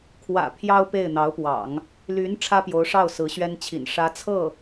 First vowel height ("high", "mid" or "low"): low